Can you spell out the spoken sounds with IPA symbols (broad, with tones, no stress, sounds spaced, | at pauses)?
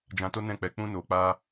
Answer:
d͡ʒ ã˧ t o˦ n ɛ̃˦˨ k͡p ɛ˧ k͡p ũ˧ n o˨ k͡p a˧